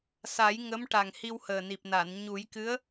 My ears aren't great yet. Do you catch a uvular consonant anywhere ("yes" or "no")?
no